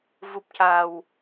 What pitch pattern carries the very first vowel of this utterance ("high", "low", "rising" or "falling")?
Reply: low